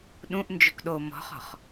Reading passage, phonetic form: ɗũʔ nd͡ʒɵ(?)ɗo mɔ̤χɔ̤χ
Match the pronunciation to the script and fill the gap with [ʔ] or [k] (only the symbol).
k